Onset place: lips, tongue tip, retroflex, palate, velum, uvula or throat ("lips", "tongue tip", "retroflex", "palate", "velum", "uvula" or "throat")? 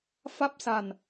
lips